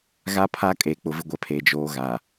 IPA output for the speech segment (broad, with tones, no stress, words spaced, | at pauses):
ɣa˦pʰa˦kʼe˨ k͡pʊ˨vɪ˨˦ ɡʷɛ˨pʰe˨d͡ʒoː˨˦ ɣa˨